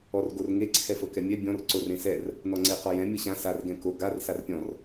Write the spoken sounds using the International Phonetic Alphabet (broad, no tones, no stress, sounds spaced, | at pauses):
ɔ r ɡ o r ŋ e ǀʰ ɛ f ɤ k ɛ mʲ ɛ bʲ ɔ̃ r ǀ o r ẽ s ɛ r | n ɔ ŋ͡ǀ e q ɔ j ɛ̃ mʲ ɤ ɕ ã s a r ɡ ɛ̃ k o ɡ a r s a r pʲ ɔ̃ r